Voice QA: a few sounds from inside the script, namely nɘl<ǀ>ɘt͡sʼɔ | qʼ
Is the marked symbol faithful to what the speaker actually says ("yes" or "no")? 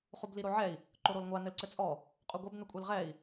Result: yes